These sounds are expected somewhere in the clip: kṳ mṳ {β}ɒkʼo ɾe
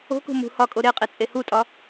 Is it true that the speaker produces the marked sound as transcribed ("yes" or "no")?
no